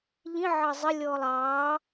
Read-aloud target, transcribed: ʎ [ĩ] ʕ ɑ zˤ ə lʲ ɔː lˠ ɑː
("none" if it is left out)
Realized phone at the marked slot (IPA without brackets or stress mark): ĩ